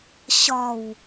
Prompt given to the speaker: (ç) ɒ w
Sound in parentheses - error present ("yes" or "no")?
yes